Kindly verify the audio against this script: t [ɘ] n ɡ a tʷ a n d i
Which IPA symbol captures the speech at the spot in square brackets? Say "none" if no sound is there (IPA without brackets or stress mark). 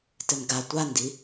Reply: ɘ